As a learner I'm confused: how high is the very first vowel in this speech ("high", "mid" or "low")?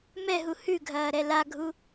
mid